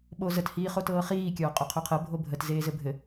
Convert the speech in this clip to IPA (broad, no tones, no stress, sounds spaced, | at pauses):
ɓ o z ə t h iː χ o t ɤː χ iː kʲ ɔː qʼ o qʰ o qʰ ɤ bʱ o bʱ ə t z eː z ɘ bʱ ɘ